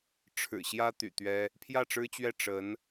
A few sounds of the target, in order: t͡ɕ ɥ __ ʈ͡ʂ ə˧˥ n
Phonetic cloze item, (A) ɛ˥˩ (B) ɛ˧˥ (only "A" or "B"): A